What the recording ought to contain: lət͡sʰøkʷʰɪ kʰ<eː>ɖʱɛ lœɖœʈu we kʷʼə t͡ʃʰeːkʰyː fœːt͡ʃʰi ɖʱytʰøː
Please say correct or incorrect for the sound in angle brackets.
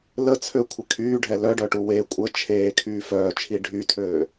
incorrect